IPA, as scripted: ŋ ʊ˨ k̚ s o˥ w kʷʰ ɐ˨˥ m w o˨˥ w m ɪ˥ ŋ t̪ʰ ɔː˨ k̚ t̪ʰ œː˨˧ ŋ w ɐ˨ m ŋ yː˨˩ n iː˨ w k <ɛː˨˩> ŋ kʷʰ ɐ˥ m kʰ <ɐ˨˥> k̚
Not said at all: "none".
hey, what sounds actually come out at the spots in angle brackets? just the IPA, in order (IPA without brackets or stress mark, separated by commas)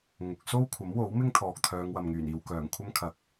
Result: œː˨˩, ɐ˨